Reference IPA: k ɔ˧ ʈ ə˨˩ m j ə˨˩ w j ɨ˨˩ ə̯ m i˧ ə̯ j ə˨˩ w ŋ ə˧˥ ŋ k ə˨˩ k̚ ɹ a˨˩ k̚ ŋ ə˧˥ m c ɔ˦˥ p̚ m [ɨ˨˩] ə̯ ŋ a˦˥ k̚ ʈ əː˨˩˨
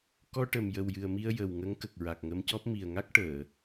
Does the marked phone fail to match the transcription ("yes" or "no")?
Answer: yes